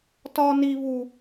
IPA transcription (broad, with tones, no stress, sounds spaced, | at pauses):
t ɒ˦ n i˦ β u˦